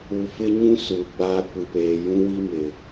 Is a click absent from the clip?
yes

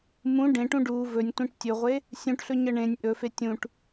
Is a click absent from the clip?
yes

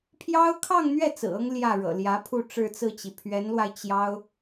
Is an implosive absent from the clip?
yes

